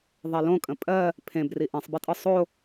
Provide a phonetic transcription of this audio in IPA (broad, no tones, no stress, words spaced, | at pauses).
ðˤɛlõkʼə̃ pʼɜ | pʰẽbri ʔẽsˤbetʼɯ sˤo